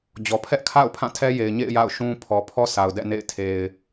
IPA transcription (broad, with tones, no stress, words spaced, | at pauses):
d͡ʑɔ˨ pʰɛ˦ʔkʰa̰˦˨ʊ̯ pʰã˦˨ tʰɛ˦je˨ɪ̯ɲḛ˦˨ɪ̯ ja̰˦˨ʊ̯ʃũ˦pʰɔ˨ pʰɔ˦ sʰa˨ʊ̯dɛ̰˦˨nḛ˦˨ɪ̯ tʰe˨ɪ̯